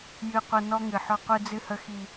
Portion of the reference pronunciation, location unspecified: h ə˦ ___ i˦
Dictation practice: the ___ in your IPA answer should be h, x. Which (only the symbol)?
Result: x